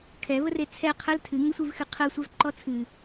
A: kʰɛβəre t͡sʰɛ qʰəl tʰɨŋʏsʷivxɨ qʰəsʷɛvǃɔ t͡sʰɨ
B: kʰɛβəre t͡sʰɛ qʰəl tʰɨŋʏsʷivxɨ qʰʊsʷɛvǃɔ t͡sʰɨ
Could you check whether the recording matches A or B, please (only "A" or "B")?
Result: A